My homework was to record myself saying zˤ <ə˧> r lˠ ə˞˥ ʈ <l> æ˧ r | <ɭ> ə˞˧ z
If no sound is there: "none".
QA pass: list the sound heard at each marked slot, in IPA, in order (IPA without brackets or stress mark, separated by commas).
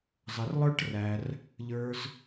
ə˧, r, ʎ